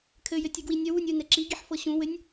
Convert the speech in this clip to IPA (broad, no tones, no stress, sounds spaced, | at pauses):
kʰ ɘ j ɘ tʲ ɤ ɡ w i nʲ ə w u nʲ ɯ n ɛ ǁ i ɡ i ħ f ɤ ɕ ũ w ɘ nʲ